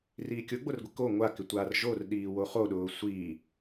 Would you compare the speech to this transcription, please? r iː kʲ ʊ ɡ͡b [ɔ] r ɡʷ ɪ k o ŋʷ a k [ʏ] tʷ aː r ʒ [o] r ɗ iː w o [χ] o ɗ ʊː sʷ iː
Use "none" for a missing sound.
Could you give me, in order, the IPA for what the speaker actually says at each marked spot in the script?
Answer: o, ɪ, o, χ

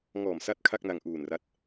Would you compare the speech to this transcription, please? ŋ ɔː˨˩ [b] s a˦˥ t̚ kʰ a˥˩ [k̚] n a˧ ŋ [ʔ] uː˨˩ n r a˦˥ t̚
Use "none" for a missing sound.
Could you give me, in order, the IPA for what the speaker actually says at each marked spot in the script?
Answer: m, k̚, ʔ

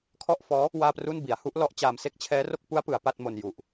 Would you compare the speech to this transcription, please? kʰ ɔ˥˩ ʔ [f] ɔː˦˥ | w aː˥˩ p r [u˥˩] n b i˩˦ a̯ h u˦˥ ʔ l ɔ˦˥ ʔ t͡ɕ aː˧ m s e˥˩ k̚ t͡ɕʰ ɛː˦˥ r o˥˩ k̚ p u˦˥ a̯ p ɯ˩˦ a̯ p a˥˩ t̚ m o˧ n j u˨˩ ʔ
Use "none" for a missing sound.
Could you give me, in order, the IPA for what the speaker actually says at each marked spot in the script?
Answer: f, u˥˩

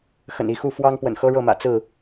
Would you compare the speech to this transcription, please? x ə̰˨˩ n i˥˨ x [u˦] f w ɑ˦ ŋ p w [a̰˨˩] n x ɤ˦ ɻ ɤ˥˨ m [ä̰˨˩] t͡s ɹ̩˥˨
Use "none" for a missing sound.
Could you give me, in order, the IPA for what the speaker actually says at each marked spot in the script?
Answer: u˥˨, ə̰˨˩, ä̰˨˩

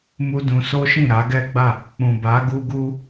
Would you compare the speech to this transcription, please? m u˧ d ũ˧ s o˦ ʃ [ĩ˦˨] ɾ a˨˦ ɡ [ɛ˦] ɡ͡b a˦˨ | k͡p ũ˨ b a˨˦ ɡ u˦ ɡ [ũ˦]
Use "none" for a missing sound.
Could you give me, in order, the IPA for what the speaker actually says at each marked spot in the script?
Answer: ĩ˦˨, ɛ˦, u˦

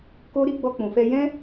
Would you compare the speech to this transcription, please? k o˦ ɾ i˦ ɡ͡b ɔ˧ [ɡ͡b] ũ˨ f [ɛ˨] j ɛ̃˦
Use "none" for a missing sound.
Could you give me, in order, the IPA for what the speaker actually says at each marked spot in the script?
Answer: k͡p, ɛ˧

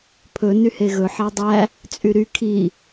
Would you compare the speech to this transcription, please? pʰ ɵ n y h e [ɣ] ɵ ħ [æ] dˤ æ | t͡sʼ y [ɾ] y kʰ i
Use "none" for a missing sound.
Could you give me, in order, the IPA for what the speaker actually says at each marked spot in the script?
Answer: ɣ, æ, ɾ

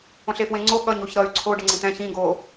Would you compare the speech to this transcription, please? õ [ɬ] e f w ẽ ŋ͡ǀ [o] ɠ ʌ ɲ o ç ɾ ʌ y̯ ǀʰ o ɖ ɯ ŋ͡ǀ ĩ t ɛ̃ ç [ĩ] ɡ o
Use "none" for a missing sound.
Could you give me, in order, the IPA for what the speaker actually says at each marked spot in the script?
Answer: ɬ, o, ĩ

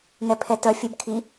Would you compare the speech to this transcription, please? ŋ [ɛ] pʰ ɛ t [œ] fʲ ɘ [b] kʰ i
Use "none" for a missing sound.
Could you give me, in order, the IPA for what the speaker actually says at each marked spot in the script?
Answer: ɛ, œ, b

